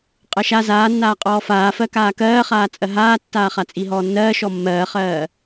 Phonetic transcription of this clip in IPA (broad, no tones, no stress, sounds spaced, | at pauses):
qʼ ɜ ʃ a z aː nː aː qʼ ɔː f aː f ɜ k aː k ɜː χ aː t͡sʼ ɜ ɦ aː tː aː χ a t͡sʼ i ɦ ɔː nː ɜː ʃ ɔ mː ɜː χ ɜː